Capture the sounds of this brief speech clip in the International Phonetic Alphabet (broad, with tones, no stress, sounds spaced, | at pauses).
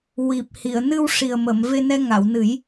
w i˨˩ p̚ h i˨˩˨ ə̯ n ɨ˧ w ʂ i˨˩ ə̯ m ə˨˩˨ m v e˧ n ɛ˧ ŋ a˨˩˨ w n ɨ˨˩˦ j